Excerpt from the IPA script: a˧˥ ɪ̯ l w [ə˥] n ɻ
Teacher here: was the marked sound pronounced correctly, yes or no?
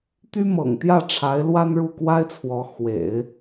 no